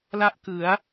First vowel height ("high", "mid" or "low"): low